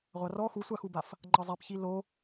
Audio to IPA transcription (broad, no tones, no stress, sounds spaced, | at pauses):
ʁʷ a r ɔ x u sʷ a x u b a f | ŋ͡ǃ ɤ zˤ e p ç i l o